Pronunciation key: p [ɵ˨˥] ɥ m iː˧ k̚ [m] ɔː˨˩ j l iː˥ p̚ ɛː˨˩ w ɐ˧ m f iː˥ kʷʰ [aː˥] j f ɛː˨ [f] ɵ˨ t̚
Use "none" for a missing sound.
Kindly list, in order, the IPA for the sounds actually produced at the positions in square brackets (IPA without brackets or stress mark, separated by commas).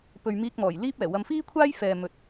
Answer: ɵ˨, m, aː˥, m